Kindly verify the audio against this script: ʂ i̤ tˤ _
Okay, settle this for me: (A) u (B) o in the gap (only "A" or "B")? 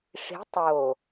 B